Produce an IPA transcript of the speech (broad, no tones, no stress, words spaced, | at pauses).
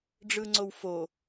ɖ͡ʐɯŋ͡ǀowfo